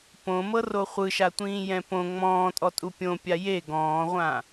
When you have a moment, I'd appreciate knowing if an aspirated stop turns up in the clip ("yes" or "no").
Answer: no